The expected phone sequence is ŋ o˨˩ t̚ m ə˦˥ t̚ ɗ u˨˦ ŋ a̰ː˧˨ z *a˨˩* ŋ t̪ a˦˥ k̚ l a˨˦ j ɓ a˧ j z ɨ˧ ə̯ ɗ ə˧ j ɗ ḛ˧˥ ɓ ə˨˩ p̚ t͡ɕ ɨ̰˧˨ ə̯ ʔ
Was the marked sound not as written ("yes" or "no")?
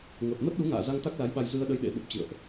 yes